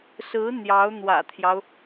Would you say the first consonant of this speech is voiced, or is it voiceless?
voiceless